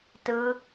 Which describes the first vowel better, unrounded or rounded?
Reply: unrounded